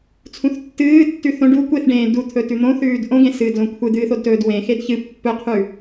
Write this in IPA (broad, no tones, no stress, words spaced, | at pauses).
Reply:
t͡sʰũθtːɨːtːʉ θõ ɖu kʷeθɖẽː dut̪ʰɵ tʉn̪õθʉːd ʔõɡẽ sɨːdlõkʷʰɨd̪ɨːθ odtɵːdwẽxed çɨ pːɵqʰʉ